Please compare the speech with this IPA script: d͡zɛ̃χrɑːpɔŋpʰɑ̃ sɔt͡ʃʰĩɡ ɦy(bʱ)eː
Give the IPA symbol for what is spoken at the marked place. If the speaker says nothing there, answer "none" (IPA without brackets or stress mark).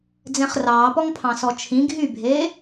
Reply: bʱ